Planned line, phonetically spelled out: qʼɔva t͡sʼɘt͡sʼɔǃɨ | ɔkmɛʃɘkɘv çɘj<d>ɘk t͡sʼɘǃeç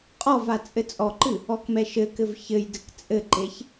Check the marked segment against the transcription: correct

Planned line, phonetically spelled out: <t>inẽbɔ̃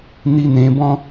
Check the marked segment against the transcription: incorrect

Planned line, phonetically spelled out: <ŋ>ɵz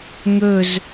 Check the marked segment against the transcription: correct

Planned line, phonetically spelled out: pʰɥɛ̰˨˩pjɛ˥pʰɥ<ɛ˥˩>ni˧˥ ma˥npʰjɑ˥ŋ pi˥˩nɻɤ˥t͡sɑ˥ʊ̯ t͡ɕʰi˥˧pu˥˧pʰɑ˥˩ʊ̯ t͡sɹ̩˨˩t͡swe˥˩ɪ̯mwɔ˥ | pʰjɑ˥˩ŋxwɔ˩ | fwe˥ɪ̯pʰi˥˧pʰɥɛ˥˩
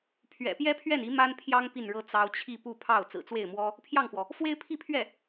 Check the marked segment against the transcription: correct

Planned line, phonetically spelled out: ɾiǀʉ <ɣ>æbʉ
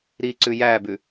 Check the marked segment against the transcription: incorrect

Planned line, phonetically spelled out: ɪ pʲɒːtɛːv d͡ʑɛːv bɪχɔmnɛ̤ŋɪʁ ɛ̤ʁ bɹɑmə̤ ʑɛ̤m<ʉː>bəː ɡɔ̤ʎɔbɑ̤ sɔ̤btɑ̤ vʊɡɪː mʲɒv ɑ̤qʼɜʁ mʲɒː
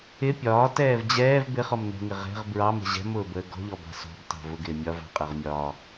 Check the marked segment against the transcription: incorrect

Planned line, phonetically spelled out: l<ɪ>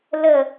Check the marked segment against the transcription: incorrect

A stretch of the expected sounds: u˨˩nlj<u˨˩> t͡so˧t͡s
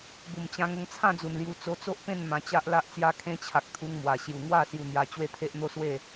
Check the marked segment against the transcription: correct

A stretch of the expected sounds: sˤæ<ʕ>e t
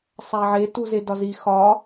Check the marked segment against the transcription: correct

